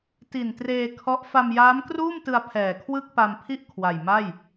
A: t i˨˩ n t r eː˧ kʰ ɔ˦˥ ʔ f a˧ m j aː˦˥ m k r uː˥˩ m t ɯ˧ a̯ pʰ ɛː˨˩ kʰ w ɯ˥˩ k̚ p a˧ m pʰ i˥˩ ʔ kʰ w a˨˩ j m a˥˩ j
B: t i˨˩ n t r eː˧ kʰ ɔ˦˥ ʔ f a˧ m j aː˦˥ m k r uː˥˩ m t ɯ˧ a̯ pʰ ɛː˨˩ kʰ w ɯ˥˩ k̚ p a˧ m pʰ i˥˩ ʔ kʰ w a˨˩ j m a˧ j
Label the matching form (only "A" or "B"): A